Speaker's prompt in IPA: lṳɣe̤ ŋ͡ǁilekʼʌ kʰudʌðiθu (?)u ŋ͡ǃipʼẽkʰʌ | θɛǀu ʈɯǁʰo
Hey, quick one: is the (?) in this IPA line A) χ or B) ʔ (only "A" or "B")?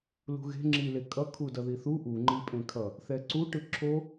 B